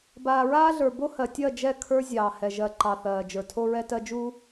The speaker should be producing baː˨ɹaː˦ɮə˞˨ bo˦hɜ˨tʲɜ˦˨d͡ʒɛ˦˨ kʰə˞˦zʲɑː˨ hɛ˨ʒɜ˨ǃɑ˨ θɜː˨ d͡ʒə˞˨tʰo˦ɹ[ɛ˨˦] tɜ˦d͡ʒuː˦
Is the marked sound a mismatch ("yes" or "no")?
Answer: yes